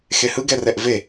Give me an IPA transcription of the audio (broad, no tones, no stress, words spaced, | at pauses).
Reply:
xehɯ ɡɛrɛʔve